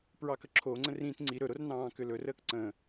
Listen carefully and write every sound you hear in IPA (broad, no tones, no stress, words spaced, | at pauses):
pɹɑkəǁʰoŋ͡ǀə̃r ĩt ŋ͡ǀi ɾɵɾor nɑ̃ːkʏlɵr əːkǀə̃